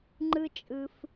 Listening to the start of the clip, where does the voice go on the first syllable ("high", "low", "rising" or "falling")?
high